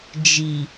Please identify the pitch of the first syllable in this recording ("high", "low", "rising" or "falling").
low